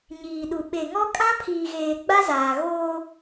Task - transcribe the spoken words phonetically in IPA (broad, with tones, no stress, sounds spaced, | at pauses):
ɲ iː˨ ɗ u˨ ɓ e˨ ŋ ɔ˦ kʼ ã˦ pʰ iː˨ ɣ eː˨ ɡ͡b a˦ z aː˨ ɣ oː˦